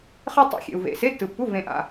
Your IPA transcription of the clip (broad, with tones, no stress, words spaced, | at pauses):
χe˥tˤḛ˧˥˧xʲḛ˨u̯vḛ˨ se˧˥˧tːɯ˨pːu˧˥˧ vẽ˨ʔa̰˨